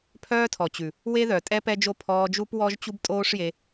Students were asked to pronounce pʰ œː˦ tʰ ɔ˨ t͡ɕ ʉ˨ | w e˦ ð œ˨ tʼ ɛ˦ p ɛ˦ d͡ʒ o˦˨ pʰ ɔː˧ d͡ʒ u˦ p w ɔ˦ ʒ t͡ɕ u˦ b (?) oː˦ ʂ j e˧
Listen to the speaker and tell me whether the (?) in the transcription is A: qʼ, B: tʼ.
B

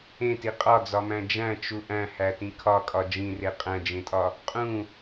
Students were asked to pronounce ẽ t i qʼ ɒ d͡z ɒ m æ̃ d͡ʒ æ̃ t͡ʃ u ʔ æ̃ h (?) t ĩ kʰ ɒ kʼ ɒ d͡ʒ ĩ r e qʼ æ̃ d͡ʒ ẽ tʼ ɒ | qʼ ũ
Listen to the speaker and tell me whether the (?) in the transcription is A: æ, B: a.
A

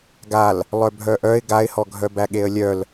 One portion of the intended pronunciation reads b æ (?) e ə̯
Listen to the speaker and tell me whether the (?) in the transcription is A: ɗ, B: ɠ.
B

